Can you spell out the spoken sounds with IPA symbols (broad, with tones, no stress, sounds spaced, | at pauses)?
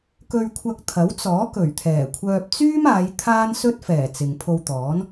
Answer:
k ɵ˧ ɥ kʷʰ ɐ˧ k̚ t̪ʰ ɐ˨˥ w t͡s ɔː˨˥ k ɵ˨˩ ɥ t̪ʰ ɛː˨˩ kʷʰ œː˧ p̚ t͡s yː˥ m aː˨˧ j t̪ʰ aː˥ n s ɵ˥ t̚ f ɛː˨˩ t͡s ɪ˨ ŋ pʰ o˧ w t̪ ɔː˨˥ n